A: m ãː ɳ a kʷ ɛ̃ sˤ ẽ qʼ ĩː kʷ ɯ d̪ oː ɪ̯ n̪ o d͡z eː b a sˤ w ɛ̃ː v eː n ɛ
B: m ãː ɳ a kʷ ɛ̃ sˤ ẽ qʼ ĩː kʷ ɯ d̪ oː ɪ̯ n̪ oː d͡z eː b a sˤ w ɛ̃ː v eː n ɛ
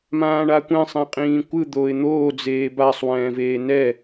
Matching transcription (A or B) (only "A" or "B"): B